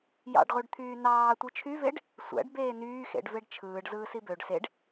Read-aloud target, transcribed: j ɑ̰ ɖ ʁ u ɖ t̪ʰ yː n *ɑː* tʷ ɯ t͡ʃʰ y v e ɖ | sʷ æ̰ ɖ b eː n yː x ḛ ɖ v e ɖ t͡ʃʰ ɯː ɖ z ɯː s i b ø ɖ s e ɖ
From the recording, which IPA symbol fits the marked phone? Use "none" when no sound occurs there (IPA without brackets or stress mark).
ɑː